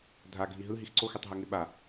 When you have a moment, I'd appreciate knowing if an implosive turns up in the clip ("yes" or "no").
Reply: yes